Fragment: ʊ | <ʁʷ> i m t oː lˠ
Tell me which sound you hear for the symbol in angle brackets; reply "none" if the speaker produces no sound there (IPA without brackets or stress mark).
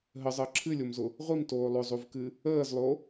ʁʷ